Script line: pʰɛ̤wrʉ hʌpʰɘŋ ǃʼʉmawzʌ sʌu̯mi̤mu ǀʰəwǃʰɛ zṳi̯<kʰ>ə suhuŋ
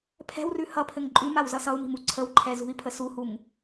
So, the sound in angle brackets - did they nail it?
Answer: no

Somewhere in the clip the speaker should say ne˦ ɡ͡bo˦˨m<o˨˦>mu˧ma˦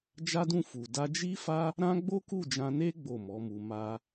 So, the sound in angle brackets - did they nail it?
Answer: no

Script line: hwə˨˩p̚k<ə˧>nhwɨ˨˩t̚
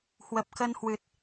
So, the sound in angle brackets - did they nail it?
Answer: yes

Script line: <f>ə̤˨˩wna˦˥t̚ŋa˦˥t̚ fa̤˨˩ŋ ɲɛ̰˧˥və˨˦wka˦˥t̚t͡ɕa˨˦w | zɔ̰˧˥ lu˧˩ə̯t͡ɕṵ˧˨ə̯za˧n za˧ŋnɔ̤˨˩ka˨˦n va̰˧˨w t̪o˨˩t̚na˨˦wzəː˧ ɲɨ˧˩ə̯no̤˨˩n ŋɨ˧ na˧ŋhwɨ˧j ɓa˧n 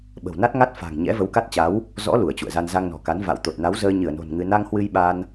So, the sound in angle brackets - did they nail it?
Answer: no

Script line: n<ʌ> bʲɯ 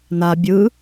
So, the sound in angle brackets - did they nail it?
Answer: no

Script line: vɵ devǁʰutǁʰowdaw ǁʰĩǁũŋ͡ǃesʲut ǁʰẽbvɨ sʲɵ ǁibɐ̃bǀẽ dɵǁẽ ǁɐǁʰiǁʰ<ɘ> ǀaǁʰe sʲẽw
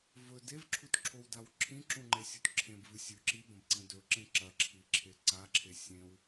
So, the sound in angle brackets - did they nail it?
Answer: no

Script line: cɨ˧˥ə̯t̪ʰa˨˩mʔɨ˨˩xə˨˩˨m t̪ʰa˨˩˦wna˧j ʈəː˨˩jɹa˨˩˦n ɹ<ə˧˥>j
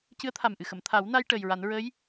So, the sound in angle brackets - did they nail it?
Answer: yes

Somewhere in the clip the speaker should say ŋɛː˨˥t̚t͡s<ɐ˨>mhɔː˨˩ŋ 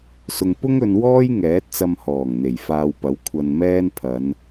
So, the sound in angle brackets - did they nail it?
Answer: no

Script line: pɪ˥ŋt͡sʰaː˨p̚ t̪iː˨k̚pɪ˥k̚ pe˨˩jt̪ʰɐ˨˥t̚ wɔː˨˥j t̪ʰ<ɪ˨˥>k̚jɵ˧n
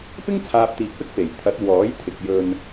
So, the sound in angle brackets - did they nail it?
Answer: no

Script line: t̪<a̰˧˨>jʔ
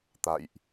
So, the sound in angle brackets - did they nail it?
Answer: yes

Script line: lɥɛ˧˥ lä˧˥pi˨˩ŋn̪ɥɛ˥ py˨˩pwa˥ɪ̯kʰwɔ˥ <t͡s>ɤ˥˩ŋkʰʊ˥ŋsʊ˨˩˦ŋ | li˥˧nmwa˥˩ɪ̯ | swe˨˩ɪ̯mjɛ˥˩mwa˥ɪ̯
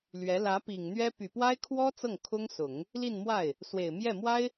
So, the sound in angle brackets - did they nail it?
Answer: yes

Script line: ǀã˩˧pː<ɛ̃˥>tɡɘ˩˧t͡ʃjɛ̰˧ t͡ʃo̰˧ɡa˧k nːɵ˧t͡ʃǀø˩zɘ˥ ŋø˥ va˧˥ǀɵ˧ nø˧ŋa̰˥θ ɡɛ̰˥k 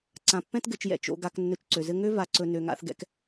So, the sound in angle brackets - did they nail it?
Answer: yes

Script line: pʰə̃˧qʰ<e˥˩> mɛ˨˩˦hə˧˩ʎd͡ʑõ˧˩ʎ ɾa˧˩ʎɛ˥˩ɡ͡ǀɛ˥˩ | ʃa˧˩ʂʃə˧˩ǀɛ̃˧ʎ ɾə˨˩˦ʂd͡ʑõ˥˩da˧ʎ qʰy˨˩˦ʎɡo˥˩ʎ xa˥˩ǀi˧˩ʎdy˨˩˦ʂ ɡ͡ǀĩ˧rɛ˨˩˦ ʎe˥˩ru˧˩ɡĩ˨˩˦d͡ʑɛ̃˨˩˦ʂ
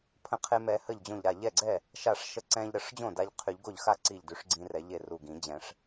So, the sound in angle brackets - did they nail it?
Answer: no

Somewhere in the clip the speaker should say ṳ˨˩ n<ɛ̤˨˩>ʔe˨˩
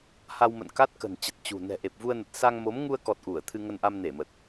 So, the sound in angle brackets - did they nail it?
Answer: yes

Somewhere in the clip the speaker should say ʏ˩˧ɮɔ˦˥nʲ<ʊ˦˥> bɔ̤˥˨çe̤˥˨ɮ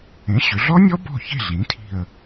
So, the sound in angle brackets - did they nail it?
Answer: no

